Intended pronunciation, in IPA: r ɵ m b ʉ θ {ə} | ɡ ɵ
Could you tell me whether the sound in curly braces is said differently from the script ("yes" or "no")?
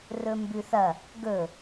yes